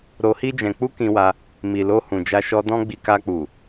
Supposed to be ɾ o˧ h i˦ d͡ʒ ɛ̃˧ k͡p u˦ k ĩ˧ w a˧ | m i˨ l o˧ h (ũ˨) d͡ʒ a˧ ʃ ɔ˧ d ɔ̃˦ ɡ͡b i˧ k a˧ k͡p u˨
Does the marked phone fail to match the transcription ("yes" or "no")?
no